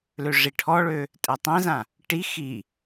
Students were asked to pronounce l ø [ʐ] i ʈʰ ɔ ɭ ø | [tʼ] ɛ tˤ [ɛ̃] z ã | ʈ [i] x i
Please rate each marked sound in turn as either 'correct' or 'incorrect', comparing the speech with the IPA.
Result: correct, correct, correct, correct

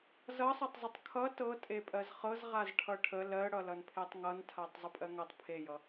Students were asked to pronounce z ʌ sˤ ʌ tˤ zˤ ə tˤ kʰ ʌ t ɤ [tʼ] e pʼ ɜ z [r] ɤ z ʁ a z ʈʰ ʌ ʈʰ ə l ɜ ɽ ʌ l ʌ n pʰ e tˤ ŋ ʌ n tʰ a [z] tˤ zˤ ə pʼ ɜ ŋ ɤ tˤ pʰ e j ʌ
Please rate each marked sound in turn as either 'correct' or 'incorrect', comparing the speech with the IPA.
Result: correct, incorrect: χ, incorrect: none

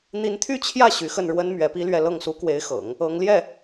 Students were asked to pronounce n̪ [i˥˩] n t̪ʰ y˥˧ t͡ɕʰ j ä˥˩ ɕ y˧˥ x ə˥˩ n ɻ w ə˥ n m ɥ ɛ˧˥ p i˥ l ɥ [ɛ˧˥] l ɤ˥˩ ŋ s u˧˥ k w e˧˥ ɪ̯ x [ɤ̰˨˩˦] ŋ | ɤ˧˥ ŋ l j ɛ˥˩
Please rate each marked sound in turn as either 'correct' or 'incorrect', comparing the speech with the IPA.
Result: incorrect: i˧˥, incorrect: ɛ˥˧, correct

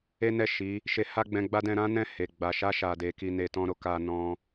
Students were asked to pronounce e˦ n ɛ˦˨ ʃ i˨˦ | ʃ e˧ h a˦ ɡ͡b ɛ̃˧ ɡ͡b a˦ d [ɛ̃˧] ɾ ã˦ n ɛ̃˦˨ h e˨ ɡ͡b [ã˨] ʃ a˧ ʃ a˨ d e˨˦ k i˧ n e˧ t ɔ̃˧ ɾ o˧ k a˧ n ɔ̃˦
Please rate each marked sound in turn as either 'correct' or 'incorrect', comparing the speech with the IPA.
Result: correct, incorrect: a˨

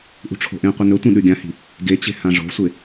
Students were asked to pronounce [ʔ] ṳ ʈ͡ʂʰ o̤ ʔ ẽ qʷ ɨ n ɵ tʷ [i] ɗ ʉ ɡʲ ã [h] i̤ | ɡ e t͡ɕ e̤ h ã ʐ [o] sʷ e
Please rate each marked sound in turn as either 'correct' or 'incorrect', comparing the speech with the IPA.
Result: correct, incorrect: ĩ, correct, incorrect: o̤

